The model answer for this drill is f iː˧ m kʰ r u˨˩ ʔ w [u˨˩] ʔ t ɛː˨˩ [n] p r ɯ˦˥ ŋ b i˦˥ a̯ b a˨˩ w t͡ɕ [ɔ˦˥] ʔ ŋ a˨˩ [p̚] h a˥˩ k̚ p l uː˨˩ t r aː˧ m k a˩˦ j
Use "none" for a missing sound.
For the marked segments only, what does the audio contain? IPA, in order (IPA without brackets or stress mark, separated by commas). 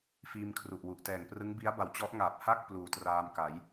u˨˩, ŋ, ɔ˦˥, p̚